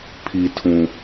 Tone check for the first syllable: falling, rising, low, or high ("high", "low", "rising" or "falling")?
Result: low